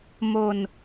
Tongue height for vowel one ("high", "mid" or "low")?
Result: mid